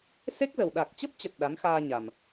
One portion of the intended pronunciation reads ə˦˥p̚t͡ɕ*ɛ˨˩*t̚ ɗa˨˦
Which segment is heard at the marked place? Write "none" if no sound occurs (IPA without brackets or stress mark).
ə˨˩